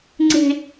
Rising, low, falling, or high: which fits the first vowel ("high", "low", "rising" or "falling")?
high